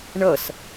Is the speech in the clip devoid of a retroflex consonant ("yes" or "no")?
no